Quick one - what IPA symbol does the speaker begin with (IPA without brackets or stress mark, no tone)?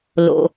l